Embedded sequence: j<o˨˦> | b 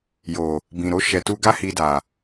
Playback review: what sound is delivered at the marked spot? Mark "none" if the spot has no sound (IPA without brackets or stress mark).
o˨